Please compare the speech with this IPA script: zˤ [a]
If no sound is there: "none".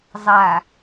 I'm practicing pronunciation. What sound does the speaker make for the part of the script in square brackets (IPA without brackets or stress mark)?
a